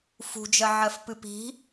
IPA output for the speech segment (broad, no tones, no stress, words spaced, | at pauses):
fṳd͡ʒɜ ʕɜfpɨpi̤